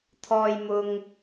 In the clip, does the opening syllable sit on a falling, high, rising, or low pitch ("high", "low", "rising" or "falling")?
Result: low